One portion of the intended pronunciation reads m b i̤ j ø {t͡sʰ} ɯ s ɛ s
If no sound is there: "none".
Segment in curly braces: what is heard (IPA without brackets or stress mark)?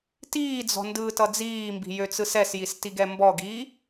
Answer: t͡s